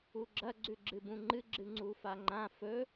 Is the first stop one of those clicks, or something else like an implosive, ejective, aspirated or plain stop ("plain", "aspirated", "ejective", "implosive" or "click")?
click